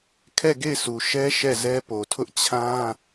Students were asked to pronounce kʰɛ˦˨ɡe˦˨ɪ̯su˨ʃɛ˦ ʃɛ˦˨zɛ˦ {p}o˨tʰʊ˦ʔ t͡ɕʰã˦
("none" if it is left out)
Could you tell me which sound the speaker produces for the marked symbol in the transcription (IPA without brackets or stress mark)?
p